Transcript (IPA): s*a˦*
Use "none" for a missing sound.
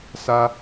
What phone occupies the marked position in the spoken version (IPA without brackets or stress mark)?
a˦